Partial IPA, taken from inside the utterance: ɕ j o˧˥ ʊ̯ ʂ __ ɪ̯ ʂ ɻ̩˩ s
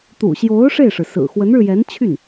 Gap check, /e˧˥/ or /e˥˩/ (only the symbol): e˥˩